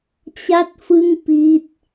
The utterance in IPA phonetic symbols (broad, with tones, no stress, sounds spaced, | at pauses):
t͡ɕ a˥˩ t̚ f ɯ˥˩ ŋ p i˥˩ t̚